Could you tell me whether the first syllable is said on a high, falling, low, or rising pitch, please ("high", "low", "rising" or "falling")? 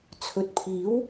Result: low